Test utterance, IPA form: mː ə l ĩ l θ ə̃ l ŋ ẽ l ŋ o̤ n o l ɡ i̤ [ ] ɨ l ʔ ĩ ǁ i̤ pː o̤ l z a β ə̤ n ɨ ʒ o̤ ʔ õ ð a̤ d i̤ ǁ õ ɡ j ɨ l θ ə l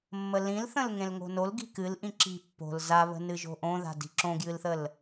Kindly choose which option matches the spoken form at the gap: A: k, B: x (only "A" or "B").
A